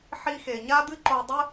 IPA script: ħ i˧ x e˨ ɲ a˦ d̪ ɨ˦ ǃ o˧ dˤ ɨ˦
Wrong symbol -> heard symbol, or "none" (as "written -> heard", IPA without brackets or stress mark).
none